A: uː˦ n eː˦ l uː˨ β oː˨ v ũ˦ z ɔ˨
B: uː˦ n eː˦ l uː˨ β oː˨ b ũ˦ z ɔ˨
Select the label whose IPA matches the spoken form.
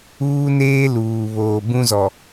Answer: B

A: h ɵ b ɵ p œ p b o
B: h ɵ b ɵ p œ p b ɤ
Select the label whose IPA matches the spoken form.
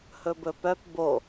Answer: A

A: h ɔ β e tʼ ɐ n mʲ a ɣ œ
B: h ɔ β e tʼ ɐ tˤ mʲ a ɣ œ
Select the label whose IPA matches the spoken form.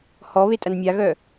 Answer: A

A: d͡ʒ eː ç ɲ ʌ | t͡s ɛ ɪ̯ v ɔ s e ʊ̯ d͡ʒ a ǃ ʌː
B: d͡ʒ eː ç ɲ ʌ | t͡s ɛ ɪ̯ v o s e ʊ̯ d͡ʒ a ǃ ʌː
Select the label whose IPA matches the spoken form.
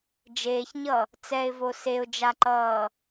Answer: B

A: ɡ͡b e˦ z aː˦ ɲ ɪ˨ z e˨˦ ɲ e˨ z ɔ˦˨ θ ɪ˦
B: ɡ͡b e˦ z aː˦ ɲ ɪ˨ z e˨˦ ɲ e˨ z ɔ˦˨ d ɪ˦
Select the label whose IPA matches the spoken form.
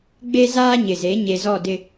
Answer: B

